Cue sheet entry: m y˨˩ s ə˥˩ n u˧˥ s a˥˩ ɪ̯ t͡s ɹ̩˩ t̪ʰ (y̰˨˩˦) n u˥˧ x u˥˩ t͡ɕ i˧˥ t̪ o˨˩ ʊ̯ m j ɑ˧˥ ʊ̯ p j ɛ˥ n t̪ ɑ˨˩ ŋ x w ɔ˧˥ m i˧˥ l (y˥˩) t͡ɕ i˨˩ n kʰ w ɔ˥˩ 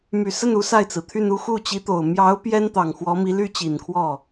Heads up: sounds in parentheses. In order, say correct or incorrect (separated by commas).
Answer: incorrect, incorrect